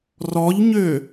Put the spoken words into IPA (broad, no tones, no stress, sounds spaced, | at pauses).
r ɔ ʎ ɲ ø